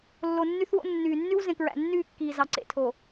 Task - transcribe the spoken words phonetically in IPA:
lː o˨ nː y˦ θ w o̰˦ nː yː˨ nː y˦ w z ẽ˨ k ɹ æ̰˨ nː yː˦˨ kː iː˨ z ɑ˨ ǀ ḛ˨ tʰ o˨

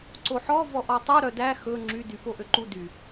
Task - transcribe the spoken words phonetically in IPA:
ǀ o ħ ɔ v ɔ ʔ ɔ tˤ u ɾ œ d æ x ɵ ŋ͡ǁ y d y f o ʔ ø ǃ u d y

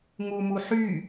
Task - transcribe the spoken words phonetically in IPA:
ŋ u m u ħ y

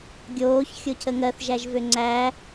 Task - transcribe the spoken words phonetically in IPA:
ɡʲ oː ç xʲ o cʰ ə ŋ ɜ θ ʒ æ ʒ v ø ŋ͡ǀ æ

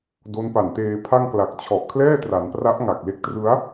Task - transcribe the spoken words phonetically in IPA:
d o˦˥ n p a˨˩ n t eː˧ pʰ a˥˩ ŋ k l a˨˩ k̚ t͡ɕʰ ɔ˨˩ ʔ kʰ l ɛː˥˩ t r a˩˦ n p r a˦˥ ʔ ŋ a˨˩ k̚ l e˦˥ k̚ t r ɯ˦˥ a̯

